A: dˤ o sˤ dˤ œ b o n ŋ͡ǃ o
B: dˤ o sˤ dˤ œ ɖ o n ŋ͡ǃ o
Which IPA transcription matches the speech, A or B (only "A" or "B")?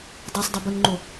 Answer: A